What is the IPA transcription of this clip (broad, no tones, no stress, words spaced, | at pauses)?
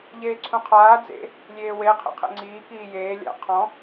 ʎeːǀʰũqʰaː d͡zḛ | lʲeːwe qʰḭqʰḛŋ͡ǀiː kiːjeː lʲa̰ qʰɔ̃